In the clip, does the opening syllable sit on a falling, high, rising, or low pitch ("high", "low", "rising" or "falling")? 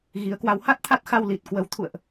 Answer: rising